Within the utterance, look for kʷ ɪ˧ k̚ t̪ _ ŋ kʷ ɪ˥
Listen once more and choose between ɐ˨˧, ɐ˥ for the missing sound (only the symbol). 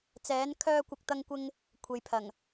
ɐ˥